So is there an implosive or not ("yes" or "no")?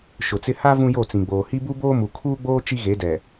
no